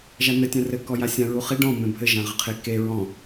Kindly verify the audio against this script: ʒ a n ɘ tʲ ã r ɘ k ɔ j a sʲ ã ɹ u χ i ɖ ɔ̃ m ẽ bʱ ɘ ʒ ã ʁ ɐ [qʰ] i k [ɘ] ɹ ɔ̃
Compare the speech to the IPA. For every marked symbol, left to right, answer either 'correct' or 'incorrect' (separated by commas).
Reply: correct, incorrect